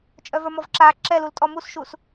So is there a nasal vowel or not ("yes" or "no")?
no